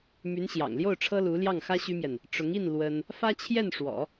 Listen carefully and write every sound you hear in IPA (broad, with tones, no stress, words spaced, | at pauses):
my˧˥nɕjɑ̰˨˩ŋljo˥˩ʊ̯ ʈ͡ʂʰɤ˥lu˧˥ljɑ˥˩ŋxä˥ ɕy˥mjɛ˨n | ʈ͡ʂʊ˧˥ŋi˥˩n lwə˥n | fä˥t͡ɕʰjɛ˥˩nʂwɔ̰˨˩˦